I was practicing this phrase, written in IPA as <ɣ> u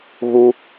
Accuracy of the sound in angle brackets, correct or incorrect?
correct